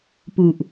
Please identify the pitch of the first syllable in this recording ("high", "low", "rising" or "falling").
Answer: low